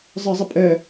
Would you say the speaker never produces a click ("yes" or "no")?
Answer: yes